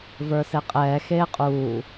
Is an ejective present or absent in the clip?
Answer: present